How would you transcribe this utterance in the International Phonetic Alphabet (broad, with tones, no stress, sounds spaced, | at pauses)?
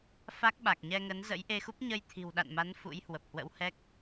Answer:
f a˦˥ k̚ ɓ a˨˩ k̚ ɲ ɛ˧ ŋ ə˨˦ n z ə̰˧˥ j ʔ e˧ x u˦˥ p̚ ɲ ə˧ j t̪ʰ i̤˨˩ w ɗ a̰˧˨ n m a˨˦ n f ṵ˧˥ j h w ə˨˩ p̚ h w ə̰˧˥ w h ɛ˦˥ k̚